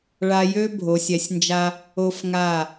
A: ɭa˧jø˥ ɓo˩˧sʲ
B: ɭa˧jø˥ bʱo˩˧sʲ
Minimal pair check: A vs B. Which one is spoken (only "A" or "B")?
B